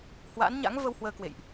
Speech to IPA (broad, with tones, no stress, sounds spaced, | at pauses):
h w a̰ː˧˥ n ɲ a̰˧˥ ŋ v ə˧ w h w əː˧ k w ḛ˧˨ j ʔ